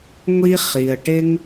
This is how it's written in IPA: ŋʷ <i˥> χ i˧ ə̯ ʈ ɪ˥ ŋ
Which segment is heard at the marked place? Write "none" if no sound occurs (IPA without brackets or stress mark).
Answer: i˥